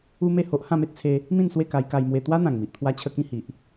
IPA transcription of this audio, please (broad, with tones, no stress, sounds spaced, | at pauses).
u˦ m e˥˧ h o˦ ʔ h ã˥˧ m e˦ t̚ t͡sʰ e˧ | m ĩ˥˧ n s w e˥˧ k a˧ j k a˧ j m w e˧ t̪ w a˦ n̪ ã˨˩ ŋ m i˨ ʔ t̪ʰ w a˧ t͡ɕʰ ə˧ k ĩ˧ h i˨ ʔ